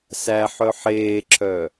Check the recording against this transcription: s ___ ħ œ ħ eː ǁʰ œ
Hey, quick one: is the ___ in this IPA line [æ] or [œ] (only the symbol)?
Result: æ